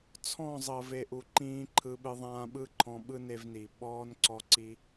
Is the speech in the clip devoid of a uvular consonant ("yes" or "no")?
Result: yes